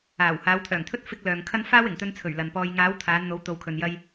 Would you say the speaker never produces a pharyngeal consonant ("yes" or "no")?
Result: yes